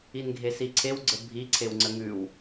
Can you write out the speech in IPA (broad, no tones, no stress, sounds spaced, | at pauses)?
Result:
i n ɡʱ e s i ǀʰ e w ɡ͡ǀ ə bʱ i ǀʰ e w ŋ͡ǀ ə ŋ ʉ w